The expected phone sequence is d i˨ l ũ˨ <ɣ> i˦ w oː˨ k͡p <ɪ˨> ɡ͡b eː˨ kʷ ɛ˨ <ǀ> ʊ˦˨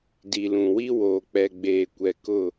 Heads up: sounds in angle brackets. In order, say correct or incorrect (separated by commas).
incorrect, incorrect, incorrect